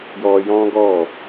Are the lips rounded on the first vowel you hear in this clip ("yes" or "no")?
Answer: yes